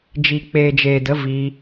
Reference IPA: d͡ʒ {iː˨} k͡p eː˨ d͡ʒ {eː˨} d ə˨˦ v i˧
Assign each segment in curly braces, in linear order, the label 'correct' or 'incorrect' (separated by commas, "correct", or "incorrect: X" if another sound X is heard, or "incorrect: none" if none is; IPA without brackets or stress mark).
incorrect: i˨, correct